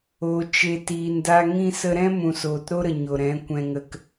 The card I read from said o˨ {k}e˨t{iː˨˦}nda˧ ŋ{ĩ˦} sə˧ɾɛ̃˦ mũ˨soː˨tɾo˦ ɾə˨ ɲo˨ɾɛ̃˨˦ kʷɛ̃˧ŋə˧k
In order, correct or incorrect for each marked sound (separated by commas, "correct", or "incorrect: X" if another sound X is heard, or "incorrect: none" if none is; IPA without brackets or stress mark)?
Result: incorrect: t͡ʃ, incorrect: iː˨, correct